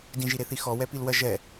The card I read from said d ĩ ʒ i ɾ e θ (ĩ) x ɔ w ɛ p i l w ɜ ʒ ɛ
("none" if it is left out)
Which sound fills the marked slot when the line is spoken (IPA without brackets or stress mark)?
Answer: i